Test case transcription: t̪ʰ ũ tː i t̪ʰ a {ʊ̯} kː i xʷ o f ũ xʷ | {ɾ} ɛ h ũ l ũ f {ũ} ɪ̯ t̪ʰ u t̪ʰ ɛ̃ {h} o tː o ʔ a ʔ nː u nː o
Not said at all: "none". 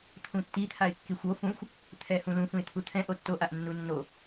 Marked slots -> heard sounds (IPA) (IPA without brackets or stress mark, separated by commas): ɪ̯, t̪ʰ, ũ, ʔ